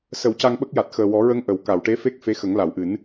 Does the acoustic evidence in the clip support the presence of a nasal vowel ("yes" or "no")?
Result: no